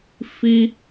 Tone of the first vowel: high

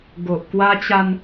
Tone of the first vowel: low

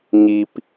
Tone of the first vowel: low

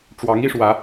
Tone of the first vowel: rising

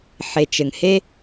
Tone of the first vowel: low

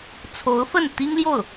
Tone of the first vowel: rising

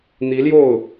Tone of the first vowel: rising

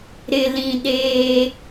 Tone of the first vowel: low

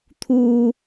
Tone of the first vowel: high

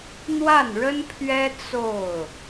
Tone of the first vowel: falling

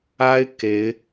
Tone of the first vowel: high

